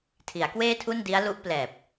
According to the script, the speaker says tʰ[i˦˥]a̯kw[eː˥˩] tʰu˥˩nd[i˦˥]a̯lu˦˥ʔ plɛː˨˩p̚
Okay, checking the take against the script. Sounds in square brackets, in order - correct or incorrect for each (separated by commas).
incorrect, correct, correct